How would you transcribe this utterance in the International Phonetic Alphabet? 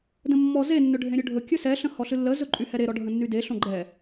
d ə̃ mː ɔ z e nː ɵ ɖʱ ẽ ɾʲ ɵ ɖʱ ɵ kʲ ɵ s ɛ ɬ ə̃ h ɔ ɬ ɨ lː ə z ɵ ǃʼ y h ɛ ɾ e ɾ ɔ ɖʱ ə̃ nː y d e ɬ õ ɡ͡ǃ ɛ

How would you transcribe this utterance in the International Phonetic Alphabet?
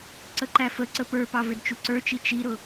ǀ ə ǃ æ f ə ǀ ə p ə˞ p ɑ v ɪ d t͡ʃ u ǀ ə˞ t͡ʃ i t͡ʃ i ɾ ʊ

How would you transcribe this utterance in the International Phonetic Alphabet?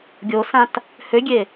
ɡʲ o s ã t | h ø ɡʲ e

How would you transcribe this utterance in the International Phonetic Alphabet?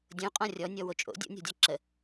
dʲ õ qʼ ɔ̃ rʲ ɔ nʲ ɔ w o t͡ʃʼ o̰ dʲ o̰ nʲ ɔ̤ dʲ ɒ ǁ ə

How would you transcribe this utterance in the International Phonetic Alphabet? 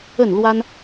ə˥˨ n l w a˦ n

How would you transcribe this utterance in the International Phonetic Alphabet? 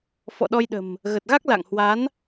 f ɔ̰˧˨ ɗ ɔ˧ j ɗ ə̤˨˩ m | ɣ ə˨˩ t̚ ɣ a˦˥ k̚ l a̰˧˨ ŋ h w a˨˦ n

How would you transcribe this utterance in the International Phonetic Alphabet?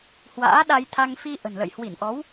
h w a̰ː˧˥ ɗ a˧ j t̪ʰ a˧ ŋ f i˧ ʔ ə̤˨˩ n l ə̰˧˨ j h w i˧˩ n ʔ ɔ˨˦ w

